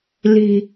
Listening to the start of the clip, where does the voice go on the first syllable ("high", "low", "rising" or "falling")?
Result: low